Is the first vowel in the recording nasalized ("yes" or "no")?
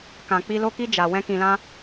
yes